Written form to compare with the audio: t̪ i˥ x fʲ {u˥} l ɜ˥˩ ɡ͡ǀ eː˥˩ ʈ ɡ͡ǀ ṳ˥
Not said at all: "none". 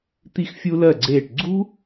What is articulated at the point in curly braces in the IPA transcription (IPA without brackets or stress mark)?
u˥